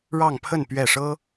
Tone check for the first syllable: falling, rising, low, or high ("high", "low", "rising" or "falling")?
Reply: falling